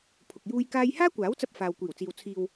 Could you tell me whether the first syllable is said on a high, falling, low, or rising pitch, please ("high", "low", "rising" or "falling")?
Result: low